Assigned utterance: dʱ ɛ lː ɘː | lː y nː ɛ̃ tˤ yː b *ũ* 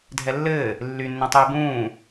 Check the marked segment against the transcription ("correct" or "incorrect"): incorrect